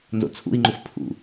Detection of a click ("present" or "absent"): present